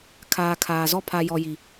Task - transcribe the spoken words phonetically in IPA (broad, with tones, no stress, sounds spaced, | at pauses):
kʰ aː˨ kʰ aː˨ z ɔ˦ pʰ a˨ j ɔ˨ j i˨